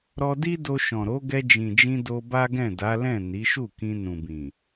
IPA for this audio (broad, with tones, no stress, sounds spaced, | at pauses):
ɾ ɔ˧ d i˦ d o˧ ʃ ɔ̃˨ ɾ o˨˦ ɡ ɛ˧ d͡ʒ ĩ˨ d͡ʒ ĩ˧ d o˧ b a˦ ɡ ɛ̃˦˨ d a˨˦ l ɛ̃˦˨ n i˨˦ ʃ u˦˨ k ĩ˧ n ũ˨ b ĩ˨